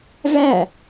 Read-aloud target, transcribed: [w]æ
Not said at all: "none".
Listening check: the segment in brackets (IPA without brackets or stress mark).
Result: v